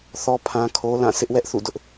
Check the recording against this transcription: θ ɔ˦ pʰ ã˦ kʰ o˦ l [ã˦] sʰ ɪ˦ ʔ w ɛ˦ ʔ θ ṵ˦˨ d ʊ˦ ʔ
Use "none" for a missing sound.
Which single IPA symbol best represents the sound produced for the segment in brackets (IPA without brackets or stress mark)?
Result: ã˦˨